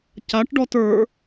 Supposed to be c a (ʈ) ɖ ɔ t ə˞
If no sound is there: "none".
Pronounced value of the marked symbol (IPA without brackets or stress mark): ʈ